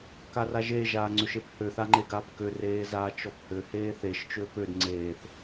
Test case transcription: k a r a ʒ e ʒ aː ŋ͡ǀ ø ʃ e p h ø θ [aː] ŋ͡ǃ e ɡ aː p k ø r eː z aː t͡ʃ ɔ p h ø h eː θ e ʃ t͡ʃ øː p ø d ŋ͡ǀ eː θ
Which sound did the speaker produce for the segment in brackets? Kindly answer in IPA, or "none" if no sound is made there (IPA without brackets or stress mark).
a